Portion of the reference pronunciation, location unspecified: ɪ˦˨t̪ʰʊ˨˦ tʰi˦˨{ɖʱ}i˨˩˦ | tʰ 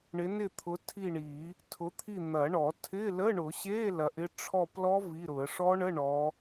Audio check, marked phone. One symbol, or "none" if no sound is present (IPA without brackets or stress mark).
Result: ɳ